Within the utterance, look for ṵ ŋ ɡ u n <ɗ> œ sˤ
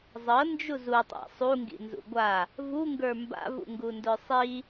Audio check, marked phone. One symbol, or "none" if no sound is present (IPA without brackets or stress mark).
d